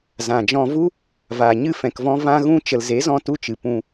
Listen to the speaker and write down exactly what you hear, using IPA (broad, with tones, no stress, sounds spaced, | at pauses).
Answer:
z ã˨ d͡ʒ ɔ̃˧ v u˦ | v aː˨ ɲ ɨ˦˨ f ɛ̃˨ k v ɔ̃˧ v ã˦ ɣ ũ˦ t͡ʃ ə˨ l z e˨˦ z ɔ̃˧ t u˦ t͡ʃ ɨ˨ p ũ˧